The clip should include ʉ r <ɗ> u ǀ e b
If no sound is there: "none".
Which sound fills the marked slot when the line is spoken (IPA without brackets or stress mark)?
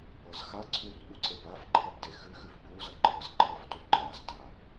ɠ